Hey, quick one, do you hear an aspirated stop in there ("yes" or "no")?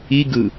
no